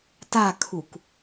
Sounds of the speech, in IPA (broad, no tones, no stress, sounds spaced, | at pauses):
t a kʰ u k